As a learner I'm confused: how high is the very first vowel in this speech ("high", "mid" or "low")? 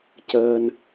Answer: mid